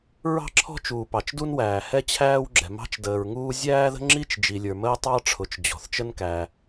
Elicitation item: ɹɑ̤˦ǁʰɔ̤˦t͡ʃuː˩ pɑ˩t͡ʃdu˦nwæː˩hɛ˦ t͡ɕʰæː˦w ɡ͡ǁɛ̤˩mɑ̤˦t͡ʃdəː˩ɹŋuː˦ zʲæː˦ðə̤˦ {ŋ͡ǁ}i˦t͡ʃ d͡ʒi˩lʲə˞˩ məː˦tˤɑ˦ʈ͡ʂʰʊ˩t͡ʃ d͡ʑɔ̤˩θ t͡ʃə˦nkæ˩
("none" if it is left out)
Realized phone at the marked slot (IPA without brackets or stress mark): ŋ͡ǁ